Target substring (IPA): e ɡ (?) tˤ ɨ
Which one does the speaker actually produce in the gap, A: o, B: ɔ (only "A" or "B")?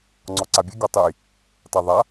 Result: B